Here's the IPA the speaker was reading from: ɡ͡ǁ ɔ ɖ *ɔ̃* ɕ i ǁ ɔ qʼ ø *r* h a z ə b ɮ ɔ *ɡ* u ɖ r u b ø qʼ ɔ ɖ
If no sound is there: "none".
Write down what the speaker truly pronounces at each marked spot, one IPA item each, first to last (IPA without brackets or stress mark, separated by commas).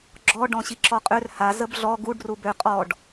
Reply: ɔ̃, r, ɡ